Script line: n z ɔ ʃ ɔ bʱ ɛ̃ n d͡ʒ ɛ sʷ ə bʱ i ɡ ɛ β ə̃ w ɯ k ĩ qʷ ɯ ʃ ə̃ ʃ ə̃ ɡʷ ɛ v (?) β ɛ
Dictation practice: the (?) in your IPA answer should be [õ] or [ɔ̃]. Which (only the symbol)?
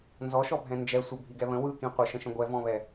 ɔ̃